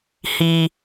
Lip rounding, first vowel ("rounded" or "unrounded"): unrounded